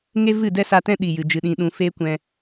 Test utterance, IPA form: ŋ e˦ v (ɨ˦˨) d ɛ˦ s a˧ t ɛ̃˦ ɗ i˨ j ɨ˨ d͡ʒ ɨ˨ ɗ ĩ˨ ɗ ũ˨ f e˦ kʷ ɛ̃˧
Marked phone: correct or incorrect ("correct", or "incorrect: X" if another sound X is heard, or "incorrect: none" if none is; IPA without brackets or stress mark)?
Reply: correct